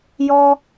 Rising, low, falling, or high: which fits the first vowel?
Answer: high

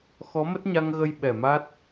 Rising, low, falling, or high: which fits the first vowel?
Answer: rising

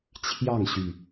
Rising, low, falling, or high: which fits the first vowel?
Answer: falling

